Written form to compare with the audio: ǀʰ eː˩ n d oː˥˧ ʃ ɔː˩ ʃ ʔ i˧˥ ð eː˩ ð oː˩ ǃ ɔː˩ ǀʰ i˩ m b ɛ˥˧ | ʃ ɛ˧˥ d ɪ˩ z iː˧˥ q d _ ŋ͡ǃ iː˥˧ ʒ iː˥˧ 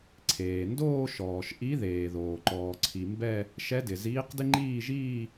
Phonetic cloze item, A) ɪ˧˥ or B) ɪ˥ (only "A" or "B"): B